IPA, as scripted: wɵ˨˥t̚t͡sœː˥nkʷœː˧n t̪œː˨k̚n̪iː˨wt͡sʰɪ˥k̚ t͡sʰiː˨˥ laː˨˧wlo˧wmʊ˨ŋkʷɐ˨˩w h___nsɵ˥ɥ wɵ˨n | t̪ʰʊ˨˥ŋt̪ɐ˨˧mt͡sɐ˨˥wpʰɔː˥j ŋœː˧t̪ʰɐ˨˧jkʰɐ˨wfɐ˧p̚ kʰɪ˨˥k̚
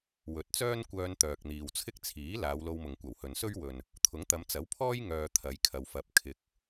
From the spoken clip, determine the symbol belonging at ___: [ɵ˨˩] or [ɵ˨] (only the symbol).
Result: ɵ˨